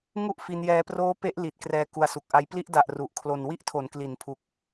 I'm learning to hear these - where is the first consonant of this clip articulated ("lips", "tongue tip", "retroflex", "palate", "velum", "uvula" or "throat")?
velum